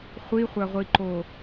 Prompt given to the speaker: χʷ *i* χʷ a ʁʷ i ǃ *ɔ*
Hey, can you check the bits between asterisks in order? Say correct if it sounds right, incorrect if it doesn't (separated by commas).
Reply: correct, incorrect